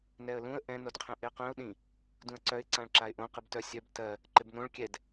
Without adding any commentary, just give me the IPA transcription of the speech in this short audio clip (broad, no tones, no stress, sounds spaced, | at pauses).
n ɛ ə̯ l ũ ə̯ ʔ ɛ̃ n o d qʰ ɛ̃ ʔ ɪ ə̯ q œ̃ ʊ̯ ɗ ĩ | d ũ ə̯ ǀ œ ɪ̯ ǀ ã ɭ ǁ a ɪ̯ ʔ õ q ɨ b t œ sʲ œ b t ɜ | ǃ ɪ b n õ ɭ kʲ ɛ d